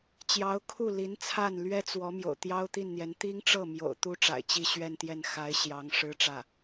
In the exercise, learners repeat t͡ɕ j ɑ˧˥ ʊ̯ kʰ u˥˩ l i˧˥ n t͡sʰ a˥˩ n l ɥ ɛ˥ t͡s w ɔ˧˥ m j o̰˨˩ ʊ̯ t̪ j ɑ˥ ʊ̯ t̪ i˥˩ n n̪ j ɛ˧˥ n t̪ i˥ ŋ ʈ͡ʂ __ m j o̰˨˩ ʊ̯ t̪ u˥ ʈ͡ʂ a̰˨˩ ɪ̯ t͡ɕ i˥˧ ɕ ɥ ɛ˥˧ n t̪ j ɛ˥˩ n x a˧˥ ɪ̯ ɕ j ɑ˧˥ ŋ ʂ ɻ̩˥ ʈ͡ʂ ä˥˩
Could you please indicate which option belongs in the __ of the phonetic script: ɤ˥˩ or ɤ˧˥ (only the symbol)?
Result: ɤ˥˩